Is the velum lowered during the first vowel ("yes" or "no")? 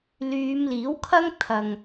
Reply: no